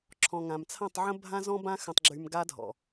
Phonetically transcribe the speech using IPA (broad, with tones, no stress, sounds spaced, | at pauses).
ǁʰ ɔ̃˨ ŋ ã˨ m t͡sʰ ã˦˨ tˤ ʕ ə̃˦ bʱ ã˦ z ɔ̃˦ b ã˦ x ə̃˧ tˤ ɡ͡ǁ y˧ m ɡ a˧ dʱ ɔ̰˨